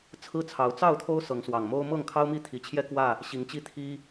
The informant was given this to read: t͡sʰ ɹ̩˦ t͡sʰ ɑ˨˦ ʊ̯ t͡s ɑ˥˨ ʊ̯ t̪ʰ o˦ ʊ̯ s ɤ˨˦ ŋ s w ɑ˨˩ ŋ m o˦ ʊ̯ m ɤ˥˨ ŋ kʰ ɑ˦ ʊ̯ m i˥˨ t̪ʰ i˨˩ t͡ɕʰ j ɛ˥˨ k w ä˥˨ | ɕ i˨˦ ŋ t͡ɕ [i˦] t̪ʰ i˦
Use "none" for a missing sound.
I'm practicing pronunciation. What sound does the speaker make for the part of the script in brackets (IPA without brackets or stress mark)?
i˦